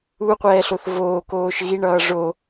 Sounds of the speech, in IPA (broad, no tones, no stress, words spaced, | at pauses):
uqʷɛːɬoθ voːkoːʃ ɣiɳʌː ʐo